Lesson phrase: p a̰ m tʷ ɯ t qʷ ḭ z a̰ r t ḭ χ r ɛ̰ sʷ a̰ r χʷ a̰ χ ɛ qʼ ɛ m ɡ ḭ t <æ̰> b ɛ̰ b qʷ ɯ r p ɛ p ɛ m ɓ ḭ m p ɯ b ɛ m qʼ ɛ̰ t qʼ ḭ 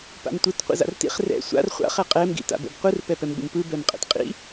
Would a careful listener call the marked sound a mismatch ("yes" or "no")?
yes